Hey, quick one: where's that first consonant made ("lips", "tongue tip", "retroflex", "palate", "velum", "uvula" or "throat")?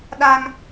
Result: tongue tip